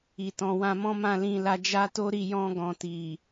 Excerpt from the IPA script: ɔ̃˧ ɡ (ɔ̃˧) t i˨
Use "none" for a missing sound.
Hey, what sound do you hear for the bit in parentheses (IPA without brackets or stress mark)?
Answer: ɔ̃˨